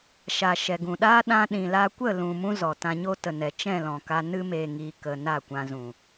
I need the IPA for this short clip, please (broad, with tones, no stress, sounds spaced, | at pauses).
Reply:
ʃ a˨ ʃ ɛ˨ ɡ ũ˨ ɗ aː˦ ɗ ã˧ ɗ ĩ˨ l a˧ kʷ ə˦˨ l ũ˨ m ũ˦ z ɔ˨ t ã˧ ɲ o˦ t ə˨ n ɛ˨ t͡ʃ ɛ̃˦˨ l ɔ̃˨ k a˧ n ɨ˧ m eː˨ ŋ iː˧ k ə˧ n a˦˨ kʷ ã˧ z ũ˨